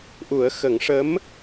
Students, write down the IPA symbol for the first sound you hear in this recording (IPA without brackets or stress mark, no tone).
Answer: ʔ